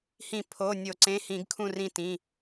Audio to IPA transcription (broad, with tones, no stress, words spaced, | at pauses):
hĩ˧˩˧ pʰo˩˧˩nʲo˧˩˧ǀẽ˩˧˩ hĩ˧˩˧ɡkʰũ˦˨rĩ˦˨tĩ˩˧˩